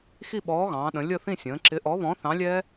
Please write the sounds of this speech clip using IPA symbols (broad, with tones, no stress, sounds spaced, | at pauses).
x i˥˧ ɓ ɔː˨˥ ɣ ɑ̃ː˩˧ ɗ ə̃˩˧ lʲ ə˥˧ θ ĩ˥˧ sʲ ə̃ː˩˧ ǁ ɪ˨˥ ʔ ɔ˨˥ β ɔ̃˨˥ θ ɑ̃˨˥ lʲ ɛ˦˥